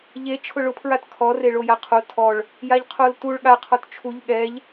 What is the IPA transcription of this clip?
ʎe t͡ʃʰʊɭʊpʰɹat kʰɔ reɭojaqʰo tʰɔɭ | jaʎqʰoltuɭ ɠaqʰɔt t͡ʃʰuʎ ɠɛʎ

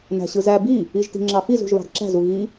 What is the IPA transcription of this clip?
næ̤ɕɯzæ bi | iʒti̤ŋ͡ǁɑfiz ṳʒβɑ̤dǁæ̤z uɣi

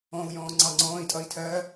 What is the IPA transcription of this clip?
ɔ̃u̯jɔ̃ː ŋ͡ǀɑŋ͡ǀɔ̃ːi̯tʼʌi̯ tʰɜ

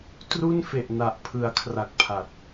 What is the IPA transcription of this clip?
tru˥˩nfe˨˩ʔna˨˩ʔ pʰɯ˩˦a̯kʰra˨˩k̚ pʰa˨˩t̚

